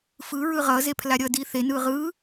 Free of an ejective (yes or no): yes